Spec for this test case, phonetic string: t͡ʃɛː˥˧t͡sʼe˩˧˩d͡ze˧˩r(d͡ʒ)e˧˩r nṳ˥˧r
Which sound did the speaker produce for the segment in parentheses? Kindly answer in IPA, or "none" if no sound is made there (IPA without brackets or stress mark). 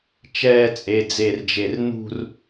d͡ʒ